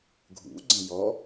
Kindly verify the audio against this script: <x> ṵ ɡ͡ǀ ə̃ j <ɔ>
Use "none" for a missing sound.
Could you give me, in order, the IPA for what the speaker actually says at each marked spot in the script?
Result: ɡʱ, ɔ

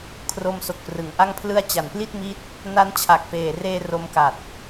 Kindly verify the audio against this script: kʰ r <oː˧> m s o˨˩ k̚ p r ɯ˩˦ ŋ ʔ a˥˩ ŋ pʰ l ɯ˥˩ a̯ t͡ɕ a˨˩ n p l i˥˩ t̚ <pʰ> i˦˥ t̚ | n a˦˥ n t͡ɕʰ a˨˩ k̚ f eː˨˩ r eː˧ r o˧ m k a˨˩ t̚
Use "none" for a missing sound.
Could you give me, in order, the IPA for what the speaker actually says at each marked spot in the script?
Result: o˧, m

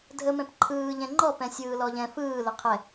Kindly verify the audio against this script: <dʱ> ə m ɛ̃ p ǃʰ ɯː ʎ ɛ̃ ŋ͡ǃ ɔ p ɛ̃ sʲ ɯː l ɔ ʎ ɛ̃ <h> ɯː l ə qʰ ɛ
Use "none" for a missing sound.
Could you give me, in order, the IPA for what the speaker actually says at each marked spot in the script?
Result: dʱ, f

